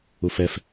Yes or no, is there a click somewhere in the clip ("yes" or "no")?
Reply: no